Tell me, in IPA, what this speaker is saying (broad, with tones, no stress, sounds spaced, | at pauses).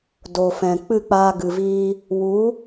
d o˨ f ɛ̃˨ k͡p ɨ˦˨ k͡p aː˧ ɡ ɨ˨ v iː˧ | w u˨˦